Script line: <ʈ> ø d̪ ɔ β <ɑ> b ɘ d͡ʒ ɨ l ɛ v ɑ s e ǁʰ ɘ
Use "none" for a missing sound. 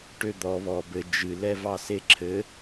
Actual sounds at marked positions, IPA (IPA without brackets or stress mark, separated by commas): ʈ, ɔ